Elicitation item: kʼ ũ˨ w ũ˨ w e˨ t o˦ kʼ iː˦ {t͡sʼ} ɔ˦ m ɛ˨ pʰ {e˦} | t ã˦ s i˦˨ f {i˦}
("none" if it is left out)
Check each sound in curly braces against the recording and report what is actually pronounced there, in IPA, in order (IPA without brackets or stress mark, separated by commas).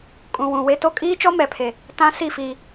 t͡ʃ, e˨, i˦